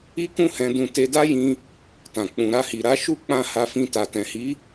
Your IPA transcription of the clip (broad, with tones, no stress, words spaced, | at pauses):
i˦kũ˦ hɛ̃˧dũ˧ te˧da˦jĩ˧ | tã˨ k͡pũ˨ ɾa˧hi˨ɾa˨˦ ʃu˦k͡pã˦˨ ha˧fĩ˧ta˨ tɛ̃˨hi˨˦